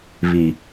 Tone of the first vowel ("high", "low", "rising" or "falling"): low